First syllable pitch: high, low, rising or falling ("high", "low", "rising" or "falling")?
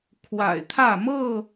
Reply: low